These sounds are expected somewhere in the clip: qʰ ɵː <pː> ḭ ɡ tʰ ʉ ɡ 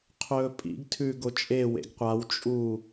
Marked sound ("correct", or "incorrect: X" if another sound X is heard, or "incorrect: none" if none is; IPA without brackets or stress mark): incorrect: pʼ